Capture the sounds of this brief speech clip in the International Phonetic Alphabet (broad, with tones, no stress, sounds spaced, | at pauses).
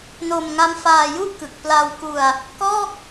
n o˧ m ŋ a˦˥ m f aː˧ j u˥˩ ʔ k ɯ˨˩ k̚ p l a˧ w k u˧ a̯ | k ɔː˥˩ k̚